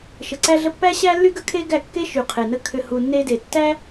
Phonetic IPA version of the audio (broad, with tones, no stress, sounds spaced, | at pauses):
ʃ ə˨ ǀ æ˧ ɮ ə˧ pː æ˦ ɕ æ˦ lː y˦ ɡ ə˦ kʰ e˦ ɡ æ˦˨ kː e˦ ʃ y˨ qʰ e˨ n ə˦ kʰ ʏ˧ h u˨ nː e˧ d e˨ tː æ˦